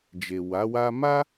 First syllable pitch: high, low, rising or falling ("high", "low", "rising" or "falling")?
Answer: low